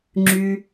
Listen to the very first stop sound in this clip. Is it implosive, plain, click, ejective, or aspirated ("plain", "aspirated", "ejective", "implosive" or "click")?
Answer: click